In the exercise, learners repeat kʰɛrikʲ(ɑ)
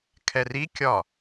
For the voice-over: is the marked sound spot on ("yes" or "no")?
no